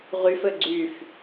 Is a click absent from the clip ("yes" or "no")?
no